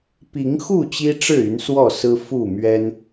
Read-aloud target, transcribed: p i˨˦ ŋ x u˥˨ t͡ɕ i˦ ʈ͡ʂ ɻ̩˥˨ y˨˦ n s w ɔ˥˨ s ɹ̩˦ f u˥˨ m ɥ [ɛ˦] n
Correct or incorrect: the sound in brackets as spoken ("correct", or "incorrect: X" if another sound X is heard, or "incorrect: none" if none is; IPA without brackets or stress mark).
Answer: correct